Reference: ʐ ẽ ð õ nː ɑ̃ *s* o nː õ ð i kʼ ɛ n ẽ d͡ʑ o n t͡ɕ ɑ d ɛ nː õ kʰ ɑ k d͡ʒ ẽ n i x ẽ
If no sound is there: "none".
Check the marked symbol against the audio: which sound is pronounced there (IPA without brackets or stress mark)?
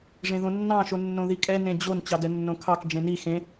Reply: ʃ